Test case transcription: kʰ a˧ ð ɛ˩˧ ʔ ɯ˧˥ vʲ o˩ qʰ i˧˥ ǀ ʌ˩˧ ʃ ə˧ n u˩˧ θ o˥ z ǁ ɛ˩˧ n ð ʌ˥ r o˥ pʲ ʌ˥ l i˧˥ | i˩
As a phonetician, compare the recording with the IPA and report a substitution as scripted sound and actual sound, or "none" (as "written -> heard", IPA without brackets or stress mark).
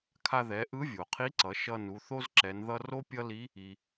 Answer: ə˧ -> ʌ˧